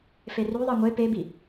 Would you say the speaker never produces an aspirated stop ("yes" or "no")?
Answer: yes